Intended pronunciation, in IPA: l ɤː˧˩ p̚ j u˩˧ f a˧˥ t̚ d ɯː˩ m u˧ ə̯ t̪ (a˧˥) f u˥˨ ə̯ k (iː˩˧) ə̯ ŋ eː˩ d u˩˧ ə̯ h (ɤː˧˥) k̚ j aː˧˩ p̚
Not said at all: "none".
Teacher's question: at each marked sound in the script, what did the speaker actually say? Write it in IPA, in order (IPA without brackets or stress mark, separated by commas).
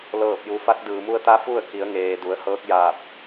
a˧˥, i˩˧, ɤː˧˥